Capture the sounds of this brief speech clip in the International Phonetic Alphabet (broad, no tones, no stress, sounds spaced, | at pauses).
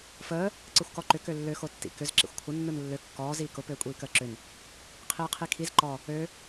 f əː | ǀ ɯ xʷ k ɔ ǃ ʏ k ø lː ø x o tː ḭ k ʏ z ǁ ḭ xʷ kʷʰ ə nː ɯ n lː ø kː ɔː z iː k ʊ p øː kʷʼ iː k əː ǁ ʏ n | qʰ iː qʰ i kʰ i z ǃ ɔ | ø